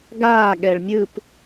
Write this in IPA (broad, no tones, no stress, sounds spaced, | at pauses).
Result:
ɡ aː ɠ ɛ ɭ mʲ ɯ p